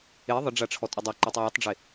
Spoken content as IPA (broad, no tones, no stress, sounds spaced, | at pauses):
e ðˤ ə ɖ͡ʐ a ʈ͡ʂʰ ɔ tʼ u dˤ o ǃ u tˤ ə w u tˤ ɖ͡ʐ e